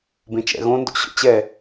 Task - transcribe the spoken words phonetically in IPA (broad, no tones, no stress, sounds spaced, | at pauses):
b ẽ t͡ʃ ɛ̰ ɣ õ n d o̰ ɕ o̰ t͡ɕ ɛ